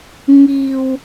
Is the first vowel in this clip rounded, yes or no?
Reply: no